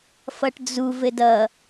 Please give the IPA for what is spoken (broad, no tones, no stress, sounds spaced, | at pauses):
f ʌ ʈ d͡z u v ɘ d ʌ